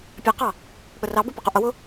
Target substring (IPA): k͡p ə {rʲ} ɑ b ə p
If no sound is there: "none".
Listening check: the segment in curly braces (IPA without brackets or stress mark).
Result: r